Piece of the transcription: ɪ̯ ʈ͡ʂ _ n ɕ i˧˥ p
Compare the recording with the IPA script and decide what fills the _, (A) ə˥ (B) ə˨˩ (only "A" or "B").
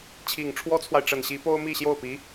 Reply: B